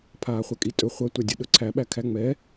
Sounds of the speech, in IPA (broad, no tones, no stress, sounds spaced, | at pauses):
pʰ aː χʷ ɛ kʼ i tʼ ɵ χʷ ɐ tʷ æ dʲ ɐ ɗ ɵ ǀʰ æ ɓ æ kʰ æ ŋ͡m ɛ